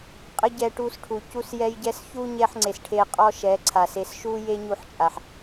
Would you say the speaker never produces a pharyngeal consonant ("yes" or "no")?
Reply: no